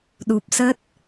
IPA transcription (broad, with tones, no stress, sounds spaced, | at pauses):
ɗ u˨˩ p̚ s ə˦˥ t̚